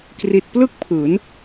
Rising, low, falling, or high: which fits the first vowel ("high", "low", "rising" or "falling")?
low